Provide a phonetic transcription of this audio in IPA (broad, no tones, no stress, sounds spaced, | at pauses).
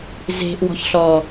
z e̤ ʔ w ɔ̤ ç ɬ ɔ